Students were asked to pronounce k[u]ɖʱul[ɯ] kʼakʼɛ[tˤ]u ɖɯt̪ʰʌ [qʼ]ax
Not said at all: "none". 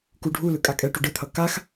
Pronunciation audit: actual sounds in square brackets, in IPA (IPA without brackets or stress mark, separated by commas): u, ɯ, ʈ, k